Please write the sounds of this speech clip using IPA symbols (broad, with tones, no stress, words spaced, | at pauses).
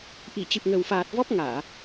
ʔi˧˩t͡ɕɨ˨˩p̚ŋə˨˩wfaː˨˩t̚ vɔ˦˥p̚ŋaː˧˩˨